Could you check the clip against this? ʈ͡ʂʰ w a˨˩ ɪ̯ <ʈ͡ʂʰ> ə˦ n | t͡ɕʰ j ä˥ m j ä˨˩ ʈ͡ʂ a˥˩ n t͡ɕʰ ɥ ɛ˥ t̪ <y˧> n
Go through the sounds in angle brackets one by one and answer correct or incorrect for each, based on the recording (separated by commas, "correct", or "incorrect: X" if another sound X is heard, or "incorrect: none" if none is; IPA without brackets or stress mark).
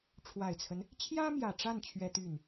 incorrect: t͡sʰ, incorrect: y˥˩